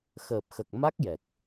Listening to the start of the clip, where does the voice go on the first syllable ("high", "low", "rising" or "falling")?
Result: low